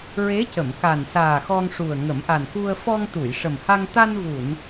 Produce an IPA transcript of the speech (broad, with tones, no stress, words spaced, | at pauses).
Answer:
ɹe˧˥cə˨˩˨mka˨˩nsaː˨˩ xɔ˧ŋʂu˨˩ə̯ ŋə˨˩˦mʔa˨˩nku˧ə̯ fɔ˧ŋt̪u˨˩˨jʂə˨˩mha˧ŋ t̪a˧nvu˨˩˨n